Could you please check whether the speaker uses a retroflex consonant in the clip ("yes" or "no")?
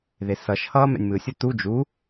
no